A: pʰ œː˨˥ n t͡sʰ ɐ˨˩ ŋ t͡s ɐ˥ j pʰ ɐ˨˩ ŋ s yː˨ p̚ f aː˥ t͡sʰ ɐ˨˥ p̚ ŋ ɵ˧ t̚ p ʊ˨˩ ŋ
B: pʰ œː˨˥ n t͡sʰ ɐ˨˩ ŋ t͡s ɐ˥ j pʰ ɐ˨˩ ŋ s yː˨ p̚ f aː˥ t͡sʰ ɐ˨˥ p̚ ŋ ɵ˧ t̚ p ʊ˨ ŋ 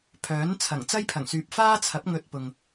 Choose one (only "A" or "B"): B